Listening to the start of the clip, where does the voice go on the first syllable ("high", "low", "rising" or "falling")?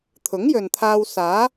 rising